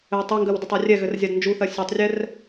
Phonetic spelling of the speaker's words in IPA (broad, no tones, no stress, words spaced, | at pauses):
ɘ tˤøŋɡɜw dɘtˤarʲɛɣɘr zʲadnd͡ʒuθɜ sʲøtˤrʲɛr